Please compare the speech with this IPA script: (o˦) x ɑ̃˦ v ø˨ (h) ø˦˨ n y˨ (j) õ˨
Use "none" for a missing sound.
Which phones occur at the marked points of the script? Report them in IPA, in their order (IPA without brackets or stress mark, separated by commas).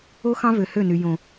o˦, h, j